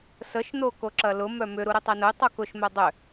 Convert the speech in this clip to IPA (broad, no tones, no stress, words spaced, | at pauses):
səʃ n̪okoǁɐlʊ mœmʏ ɾuɾʏtˤenʊy̯ tˤukʊʃ mœdˤʏ